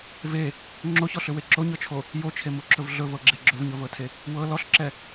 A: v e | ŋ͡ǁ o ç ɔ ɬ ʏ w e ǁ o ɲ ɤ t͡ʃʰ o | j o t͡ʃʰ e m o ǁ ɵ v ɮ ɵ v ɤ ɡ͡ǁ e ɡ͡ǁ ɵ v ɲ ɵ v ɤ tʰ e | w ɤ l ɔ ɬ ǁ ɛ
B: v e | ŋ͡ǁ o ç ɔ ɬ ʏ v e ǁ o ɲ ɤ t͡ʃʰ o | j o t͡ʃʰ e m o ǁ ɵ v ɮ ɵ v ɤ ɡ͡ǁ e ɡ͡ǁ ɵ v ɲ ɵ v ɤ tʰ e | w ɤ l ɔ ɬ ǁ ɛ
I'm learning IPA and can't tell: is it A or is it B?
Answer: A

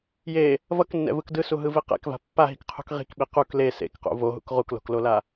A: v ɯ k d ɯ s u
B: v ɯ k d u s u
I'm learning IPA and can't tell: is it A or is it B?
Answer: A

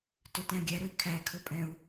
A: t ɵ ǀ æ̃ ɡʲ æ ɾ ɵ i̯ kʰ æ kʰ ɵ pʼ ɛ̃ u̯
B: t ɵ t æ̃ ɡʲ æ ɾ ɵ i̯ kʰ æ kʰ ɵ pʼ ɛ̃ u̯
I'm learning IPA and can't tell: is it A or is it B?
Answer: B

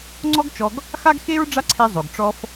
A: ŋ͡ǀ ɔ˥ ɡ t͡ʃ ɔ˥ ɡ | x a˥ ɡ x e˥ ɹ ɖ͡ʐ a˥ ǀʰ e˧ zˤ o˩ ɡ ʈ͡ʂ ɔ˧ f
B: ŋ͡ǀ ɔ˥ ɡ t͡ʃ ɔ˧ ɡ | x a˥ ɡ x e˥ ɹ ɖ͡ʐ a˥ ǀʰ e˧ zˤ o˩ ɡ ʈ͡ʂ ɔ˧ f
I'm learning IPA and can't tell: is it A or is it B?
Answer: B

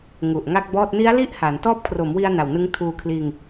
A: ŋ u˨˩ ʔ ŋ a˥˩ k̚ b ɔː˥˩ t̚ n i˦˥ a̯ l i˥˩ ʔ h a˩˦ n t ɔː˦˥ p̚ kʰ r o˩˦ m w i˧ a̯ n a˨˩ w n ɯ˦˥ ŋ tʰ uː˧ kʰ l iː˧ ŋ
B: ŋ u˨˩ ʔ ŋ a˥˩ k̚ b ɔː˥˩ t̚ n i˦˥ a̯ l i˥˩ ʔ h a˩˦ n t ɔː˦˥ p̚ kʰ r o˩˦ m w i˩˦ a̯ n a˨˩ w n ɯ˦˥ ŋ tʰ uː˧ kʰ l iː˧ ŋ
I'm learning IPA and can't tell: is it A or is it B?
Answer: A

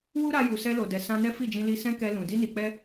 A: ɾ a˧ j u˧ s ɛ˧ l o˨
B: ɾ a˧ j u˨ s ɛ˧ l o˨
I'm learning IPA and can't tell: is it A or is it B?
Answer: B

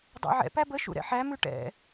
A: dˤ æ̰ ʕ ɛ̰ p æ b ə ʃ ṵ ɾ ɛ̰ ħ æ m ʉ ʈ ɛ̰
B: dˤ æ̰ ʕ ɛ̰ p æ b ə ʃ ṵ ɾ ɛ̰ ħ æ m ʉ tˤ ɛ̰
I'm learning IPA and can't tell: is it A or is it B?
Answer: A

